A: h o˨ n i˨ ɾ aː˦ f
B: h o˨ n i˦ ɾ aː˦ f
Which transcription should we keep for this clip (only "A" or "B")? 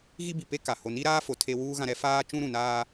B